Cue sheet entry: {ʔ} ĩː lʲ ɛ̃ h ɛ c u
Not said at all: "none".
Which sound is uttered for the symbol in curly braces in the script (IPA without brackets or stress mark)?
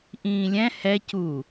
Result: ʔ